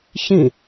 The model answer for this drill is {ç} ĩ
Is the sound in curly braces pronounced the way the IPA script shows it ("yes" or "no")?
yes